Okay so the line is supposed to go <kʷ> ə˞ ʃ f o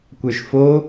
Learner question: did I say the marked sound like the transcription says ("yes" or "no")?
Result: yes